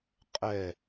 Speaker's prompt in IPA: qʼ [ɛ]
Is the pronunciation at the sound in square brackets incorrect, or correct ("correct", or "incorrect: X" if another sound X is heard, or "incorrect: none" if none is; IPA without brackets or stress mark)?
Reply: correct